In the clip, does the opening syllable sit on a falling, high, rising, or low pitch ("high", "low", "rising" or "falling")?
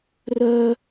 high